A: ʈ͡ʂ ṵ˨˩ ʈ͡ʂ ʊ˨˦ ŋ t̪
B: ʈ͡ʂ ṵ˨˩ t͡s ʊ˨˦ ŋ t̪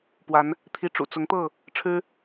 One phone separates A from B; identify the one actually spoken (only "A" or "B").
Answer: B